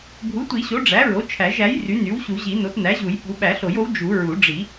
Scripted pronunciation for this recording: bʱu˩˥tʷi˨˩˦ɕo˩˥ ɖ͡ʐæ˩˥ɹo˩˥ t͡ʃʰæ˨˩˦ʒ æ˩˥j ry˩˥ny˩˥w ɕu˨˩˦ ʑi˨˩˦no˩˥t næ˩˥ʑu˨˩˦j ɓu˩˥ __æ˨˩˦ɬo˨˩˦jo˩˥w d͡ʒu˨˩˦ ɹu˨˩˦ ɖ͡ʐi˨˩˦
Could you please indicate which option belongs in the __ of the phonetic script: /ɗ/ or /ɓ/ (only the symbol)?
ɓ